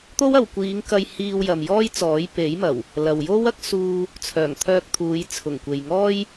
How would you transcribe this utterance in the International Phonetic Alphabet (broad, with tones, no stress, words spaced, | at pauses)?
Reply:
t̪o˥wɐ˨wkʷiː˨˧ŋkɐ˧j hiː˧wjɐ˨mjɔː˥jt͡sɔː˨˥j pe˨˥jmɐ˨˩w | lɐ˨wjo˥wɐ˥k̚ suː˧ | t͡sʰœː˨˩ŋt̪ʰœː˧k̚t̪ʰuː˨˧j t͡sʰʊ˨˩ŋkʷe˨jŋɔː˥j